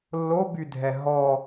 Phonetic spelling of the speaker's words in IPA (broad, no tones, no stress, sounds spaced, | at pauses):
lː o b y dʱ ɛ ɦ ɔ